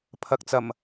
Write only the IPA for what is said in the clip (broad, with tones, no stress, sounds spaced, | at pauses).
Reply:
pʰ ɐ˨ k̚ t͡s ɐ˨˩ m